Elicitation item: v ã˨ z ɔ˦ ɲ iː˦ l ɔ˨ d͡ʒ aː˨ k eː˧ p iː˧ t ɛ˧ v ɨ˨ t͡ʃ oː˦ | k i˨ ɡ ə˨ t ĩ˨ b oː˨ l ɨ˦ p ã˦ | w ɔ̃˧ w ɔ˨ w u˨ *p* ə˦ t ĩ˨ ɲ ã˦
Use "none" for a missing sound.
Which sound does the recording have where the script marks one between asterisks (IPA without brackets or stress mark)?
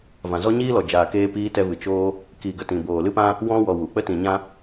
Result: k͡p